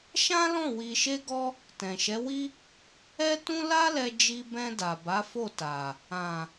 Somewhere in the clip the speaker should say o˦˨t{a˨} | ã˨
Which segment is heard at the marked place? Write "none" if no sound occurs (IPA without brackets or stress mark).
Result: a˨